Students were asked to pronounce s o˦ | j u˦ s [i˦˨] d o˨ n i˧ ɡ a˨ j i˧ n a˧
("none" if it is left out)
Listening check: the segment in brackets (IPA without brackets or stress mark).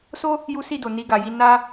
i˦˨